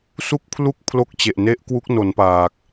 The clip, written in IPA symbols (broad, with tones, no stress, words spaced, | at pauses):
su˥˩k̚pʰlu˥˩k̚pʰlo˦˥k̚ t͡ɕe˨˩ʔne˦˥ʔkwu˦˥k̚no˩˦n paː˨˩k̚